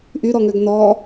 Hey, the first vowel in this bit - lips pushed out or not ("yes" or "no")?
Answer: yes